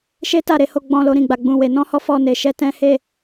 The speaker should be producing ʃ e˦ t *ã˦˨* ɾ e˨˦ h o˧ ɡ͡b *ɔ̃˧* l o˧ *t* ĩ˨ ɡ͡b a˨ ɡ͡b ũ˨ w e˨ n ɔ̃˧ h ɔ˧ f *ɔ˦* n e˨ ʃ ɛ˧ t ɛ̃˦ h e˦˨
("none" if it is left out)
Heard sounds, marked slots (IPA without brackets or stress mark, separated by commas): a˦˨, ɔ̃˧, ɾ, ɔ˧